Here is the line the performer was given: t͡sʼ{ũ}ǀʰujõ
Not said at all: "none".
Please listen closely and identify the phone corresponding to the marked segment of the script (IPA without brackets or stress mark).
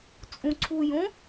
ũ